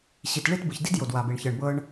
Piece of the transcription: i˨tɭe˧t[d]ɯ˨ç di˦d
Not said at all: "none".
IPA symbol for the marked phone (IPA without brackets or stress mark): b